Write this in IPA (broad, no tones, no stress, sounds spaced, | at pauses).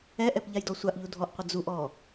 ɛ ʔ ɛ p ʎ a j d ɔ sʷ a ʔ ʎ u dʱ ɔ ʔ qʷ ə d͡z u ʔ ɔ